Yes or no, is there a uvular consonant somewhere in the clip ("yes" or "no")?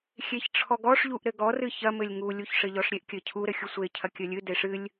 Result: no